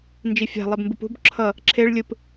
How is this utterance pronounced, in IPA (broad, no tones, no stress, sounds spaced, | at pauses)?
n d͡ʒ i fʲ a̤ lˠ e b m b ɯ p ṳ b ǁʰ ʌ | ǁʰ e ɭ lʲ ɯ p